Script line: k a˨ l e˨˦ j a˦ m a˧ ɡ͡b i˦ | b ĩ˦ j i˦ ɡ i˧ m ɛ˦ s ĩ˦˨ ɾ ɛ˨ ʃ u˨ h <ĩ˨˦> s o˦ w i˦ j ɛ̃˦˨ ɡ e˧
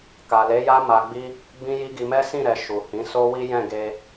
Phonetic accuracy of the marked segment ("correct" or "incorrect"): correct